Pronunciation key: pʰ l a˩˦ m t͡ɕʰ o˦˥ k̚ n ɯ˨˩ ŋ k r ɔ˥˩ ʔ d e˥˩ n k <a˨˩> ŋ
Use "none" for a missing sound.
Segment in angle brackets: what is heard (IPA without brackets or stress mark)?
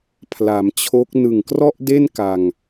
a˧